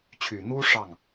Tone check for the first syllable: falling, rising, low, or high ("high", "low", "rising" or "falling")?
low